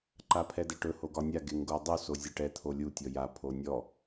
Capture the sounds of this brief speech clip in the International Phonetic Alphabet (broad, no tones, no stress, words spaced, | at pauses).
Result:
ǃapʰɛdɛʈɵ hoɡɒnʲa ɡeŋɡodˤu sozʲɛʈɛ t̪ʰolʲu tʲɔja pʰonʲɔ